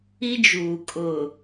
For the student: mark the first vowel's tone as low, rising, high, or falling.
high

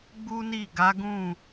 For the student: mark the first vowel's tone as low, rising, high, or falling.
high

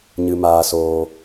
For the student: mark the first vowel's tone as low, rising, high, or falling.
low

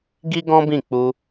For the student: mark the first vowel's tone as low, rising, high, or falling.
high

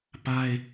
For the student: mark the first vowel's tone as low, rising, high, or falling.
high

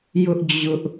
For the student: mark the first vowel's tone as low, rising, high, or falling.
high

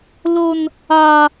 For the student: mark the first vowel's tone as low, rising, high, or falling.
high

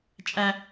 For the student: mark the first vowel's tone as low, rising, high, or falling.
high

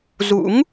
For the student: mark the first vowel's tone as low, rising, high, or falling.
rising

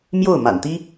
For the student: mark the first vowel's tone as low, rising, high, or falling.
falling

